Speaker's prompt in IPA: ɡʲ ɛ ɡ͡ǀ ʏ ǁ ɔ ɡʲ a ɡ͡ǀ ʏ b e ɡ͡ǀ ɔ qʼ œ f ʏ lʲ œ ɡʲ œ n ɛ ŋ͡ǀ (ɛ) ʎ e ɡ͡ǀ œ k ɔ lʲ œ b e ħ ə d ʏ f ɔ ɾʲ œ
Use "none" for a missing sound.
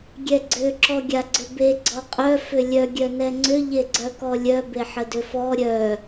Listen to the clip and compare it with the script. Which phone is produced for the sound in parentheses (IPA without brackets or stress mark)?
ʏ